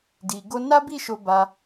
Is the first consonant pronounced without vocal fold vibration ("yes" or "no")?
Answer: no